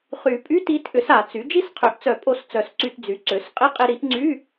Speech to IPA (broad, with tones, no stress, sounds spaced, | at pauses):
χ y˨˩˦ pʼ y˧˥˧ t i˩˥ t ʔ ʏ˩˥ s a˨˩˦ t͡s y˩˥ d͡ʒ i˥˧ s qʰ ø˩˥ ʔ t͡s œ˨˩˦ pʼ o˧ s t͡s œ˨˩˦ s ǀ y˧ t d͡z y˩˥ ǀ ø˩˥ s qʼ ɪ˧˥˧ qʼ ɪ˧ ɾ i˩˥ ʔ ŋ͡ǀ y˧˥˧